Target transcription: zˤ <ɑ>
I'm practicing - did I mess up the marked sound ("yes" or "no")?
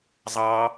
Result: no